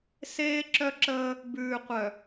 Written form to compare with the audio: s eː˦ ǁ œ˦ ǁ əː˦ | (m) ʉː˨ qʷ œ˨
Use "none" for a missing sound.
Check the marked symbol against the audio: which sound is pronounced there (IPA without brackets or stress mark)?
b